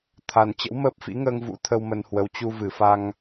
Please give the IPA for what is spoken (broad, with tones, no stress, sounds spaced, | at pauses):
t̪ʰ a˨˩ n t͡ɕ ə̰˧˥ w m əː˦˥ p̚ f ḭ˧˥ ŋ əː˧ ŋ v ṵ˧˥ t̪ʰ ə˧ w m ə˧ n h w ə˨˦ w t͡ɕ u˧ v ɨ˨˩ f a˧ ŋ